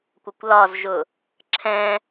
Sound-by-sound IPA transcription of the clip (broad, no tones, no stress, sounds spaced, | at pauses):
kʷ ə kʷ l ɒ z ʒ ʊ | ǁʰ ɛ̃